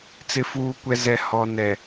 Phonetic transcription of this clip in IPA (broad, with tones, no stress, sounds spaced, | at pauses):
t͡s ɪ˨ f uː˨ kʷ ɛ˨ z ɛ˨ h ɔ˨ n ɛ˨